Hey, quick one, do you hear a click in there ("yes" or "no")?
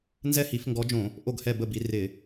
no